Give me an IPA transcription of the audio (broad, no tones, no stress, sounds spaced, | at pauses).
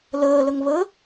l əː l ə ŋ β ə